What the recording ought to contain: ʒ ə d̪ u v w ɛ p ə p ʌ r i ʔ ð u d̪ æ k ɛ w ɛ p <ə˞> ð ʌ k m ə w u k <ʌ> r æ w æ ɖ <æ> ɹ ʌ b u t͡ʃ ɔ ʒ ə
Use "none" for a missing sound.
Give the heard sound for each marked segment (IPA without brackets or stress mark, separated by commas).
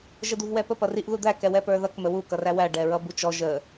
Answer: ə˞, ʌ, ɛ